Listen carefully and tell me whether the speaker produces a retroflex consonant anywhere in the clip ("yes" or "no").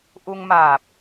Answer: no